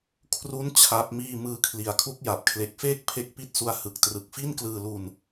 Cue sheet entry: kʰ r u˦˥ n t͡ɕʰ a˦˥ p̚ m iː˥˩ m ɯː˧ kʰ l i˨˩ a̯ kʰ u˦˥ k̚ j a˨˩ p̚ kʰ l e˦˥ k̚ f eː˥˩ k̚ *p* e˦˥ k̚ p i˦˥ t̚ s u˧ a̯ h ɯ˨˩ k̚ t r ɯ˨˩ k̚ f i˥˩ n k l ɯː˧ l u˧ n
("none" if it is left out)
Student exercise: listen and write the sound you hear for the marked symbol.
pʰ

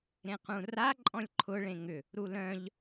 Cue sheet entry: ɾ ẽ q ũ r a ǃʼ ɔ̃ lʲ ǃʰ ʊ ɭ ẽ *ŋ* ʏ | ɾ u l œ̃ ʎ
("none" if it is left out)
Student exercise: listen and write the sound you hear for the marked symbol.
ŋ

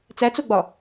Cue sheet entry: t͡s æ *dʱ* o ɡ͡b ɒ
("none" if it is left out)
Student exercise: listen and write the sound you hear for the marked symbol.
t͡s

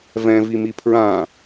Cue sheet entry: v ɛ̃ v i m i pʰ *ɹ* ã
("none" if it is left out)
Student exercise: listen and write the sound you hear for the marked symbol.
ɹ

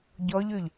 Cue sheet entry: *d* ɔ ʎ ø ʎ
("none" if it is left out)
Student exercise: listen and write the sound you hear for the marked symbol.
ɟ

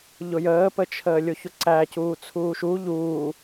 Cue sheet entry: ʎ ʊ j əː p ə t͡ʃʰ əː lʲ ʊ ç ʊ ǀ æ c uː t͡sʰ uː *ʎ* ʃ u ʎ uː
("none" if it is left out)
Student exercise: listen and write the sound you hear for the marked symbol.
none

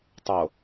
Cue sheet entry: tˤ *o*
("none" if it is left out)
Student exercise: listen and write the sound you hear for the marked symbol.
o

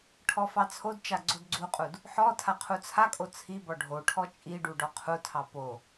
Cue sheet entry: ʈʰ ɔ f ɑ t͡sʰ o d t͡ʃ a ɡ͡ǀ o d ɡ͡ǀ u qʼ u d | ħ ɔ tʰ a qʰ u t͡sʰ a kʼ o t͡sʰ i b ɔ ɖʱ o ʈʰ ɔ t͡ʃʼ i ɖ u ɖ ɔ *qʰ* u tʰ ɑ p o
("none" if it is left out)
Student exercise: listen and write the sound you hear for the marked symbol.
qʰ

